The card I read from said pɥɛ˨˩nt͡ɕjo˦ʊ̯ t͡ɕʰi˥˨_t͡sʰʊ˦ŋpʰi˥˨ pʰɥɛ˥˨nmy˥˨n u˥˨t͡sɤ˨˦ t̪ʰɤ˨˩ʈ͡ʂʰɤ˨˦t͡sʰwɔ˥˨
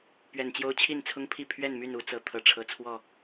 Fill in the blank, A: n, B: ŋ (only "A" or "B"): A